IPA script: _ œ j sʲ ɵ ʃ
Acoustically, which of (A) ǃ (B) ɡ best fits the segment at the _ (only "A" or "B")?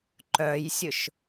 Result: A